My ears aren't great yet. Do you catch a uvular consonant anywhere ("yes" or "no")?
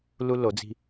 no